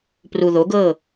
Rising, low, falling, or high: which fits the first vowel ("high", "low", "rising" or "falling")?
low